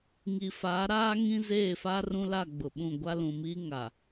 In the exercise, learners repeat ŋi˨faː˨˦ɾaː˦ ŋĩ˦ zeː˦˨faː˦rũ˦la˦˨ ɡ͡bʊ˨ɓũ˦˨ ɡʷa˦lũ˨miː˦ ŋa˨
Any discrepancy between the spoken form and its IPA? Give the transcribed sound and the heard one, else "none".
none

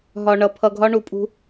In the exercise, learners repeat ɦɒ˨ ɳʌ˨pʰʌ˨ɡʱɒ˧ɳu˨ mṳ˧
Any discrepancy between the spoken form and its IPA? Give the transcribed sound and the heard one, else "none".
m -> pʼ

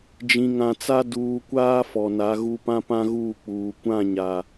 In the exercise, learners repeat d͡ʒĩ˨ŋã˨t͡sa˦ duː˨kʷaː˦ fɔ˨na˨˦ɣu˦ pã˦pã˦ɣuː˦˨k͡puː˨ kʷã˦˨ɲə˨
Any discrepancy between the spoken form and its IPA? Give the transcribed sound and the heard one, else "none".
ə˨ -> a˨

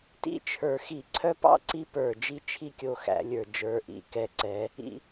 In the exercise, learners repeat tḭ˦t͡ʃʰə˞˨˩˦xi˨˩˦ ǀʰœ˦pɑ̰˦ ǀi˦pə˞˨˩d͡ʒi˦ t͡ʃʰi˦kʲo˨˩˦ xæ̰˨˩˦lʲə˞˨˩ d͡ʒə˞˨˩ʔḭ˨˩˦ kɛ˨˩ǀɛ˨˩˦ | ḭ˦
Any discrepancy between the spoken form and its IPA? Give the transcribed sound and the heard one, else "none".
none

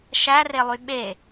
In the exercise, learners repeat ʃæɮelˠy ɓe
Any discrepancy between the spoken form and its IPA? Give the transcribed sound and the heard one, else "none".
ɮ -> r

